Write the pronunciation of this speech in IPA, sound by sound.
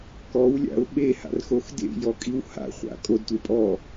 k ɔ w lʲ a̰ ʊ̯ ɓ e h a̰ r x o x d ḛ j ɔ kʼ i w h a̰ χʷ a̰ kʼ o d tʷ e pʼ ɔ

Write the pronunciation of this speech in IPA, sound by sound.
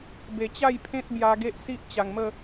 b e˨˩ t͡ɕ a˥˧ j pʰ ẽ˦ t̚ b j a˧ ɡ e˦ ʔ s i˦ ʔ t͡ɕ a˨˩ ŋ m ə˥˧

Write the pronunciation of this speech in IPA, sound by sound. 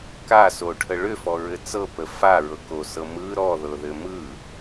k a s o ʈʰ ə ɭ ʏ f ɔ ɹ ɘ t͡s ɤ p ə f a ɹ ɤ k o s ɤ m ɯ ɾ ɔ ð ɤ ð ɘ m ɯ

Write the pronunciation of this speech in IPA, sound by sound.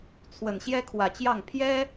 t͡sʰ w ə˨˩ n ɕ j ɛ˥ kʰ w ä˨˩ t͡ɕ j ɑ˥˩ ŋ pʰ j ɛ˥

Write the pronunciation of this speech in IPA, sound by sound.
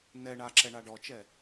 n ɛ ɳ a ǁ ɛ ɳ a ɖ ɔ t͡ʃ ɛ

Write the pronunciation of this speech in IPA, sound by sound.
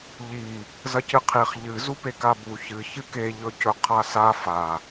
ʎ i | z ɐ c ɨ qʰ i χ ʎ ɨ z u p e k a b u ç ɨ ç ɨ k e ʎ ɵ c ɵ qʰ a s a f a

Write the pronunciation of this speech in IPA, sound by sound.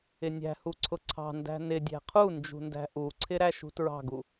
ɪ nʲ æ̤ h u ǀʰ ʊ ǀʰ ɑ̤ n d æ̤ n ɪ dʲ æ̤ qʰ u n d͡ʒ ṳ n d æ̤ ʔ u ǀʰ ɪ ɾ æ ʃ ṳ t ɹ ɑ̤ ɡ u

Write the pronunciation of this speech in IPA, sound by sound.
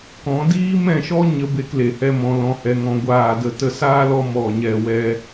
k ɔ̃˨˦ d iː˦ m ɛ̃˦˨ ʃ ɔ˦ ɲ ə˦ b e˦ k l e˨ h ɛ˦ m ɔ̃˧ l ɔ̃˧ h ɛ˧ ŋ ɔ̃˧ ɡʷ aː˦˨ d ə˦ t ə˧ s aː˦ l ɔ˧ m ɔ˦˨ ɲ ɛ˦˨ w ɛ˦

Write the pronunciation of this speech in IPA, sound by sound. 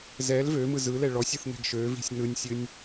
z ɛ l v ø m ɯ z ɯ l ɛ ɭ ɔ sʲ ɯ θ n ɛ̤ ɡ ʃ ø v i̤ sʲ n ɯ nʲ sʲ ɨ nʲ

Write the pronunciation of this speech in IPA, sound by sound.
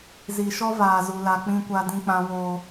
z i˨ ʃ ɔ˦ v aː˨ z u˨ l a˨ k͡p ĩ˦ kʷ a˦ d ĩ˦ k͡p ã˦ w oː˦

